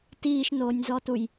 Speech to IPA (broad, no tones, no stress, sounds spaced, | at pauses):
t iː ʃ n oː nʲ z ɔ t u j